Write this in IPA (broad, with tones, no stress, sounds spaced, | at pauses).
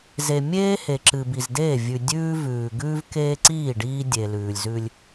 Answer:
z e˨ mʲ eː˦ h e˨ ǁ ɨ˨ b i˨ z d eː˦˨ vʲ ʉ˨ dʲ ʉː˦ v ʉː˨ ɡ ʉː˦ v k eː˦ ǀ iː˦˨ ɖ iː˦ dʲ e˨ l ʉː˨ lʲ z ʉ˦ lʲ